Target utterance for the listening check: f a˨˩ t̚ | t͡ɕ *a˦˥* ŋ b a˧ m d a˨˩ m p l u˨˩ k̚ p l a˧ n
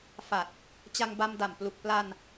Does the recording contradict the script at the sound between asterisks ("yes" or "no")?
yes